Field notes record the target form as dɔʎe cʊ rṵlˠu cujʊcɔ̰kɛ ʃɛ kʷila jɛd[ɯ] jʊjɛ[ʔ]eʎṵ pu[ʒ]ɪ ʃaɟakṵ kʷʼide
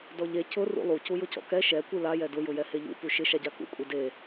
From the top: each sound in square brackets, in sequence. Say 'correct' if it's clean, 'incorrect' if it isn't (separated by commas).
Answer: incorrect, incorrect, incorrect